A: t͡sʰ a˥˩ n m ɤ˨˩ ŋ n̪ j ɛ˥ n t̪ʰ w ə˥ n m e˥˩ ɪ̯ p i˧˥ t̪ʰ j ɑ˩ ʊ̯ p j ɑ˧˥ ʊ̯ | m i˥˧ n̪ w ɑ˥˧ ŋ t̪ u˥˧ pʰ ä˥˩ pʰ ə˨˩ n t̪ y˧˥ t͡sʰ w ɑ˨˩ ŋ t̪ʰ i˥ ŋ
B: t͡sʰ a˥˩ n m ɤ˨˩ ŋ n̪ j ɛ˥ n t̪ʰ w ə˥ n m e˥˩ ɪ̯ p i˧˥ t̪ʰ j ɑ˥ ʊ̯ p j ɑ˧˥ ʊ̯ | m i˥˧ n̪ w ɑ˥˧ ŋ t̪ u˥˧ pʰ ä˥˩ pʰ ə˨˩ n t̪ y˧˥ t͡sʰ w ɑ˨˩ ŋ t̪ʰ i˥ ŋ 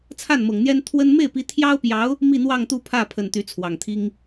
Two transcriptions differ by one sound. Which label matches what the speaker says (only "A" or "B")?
B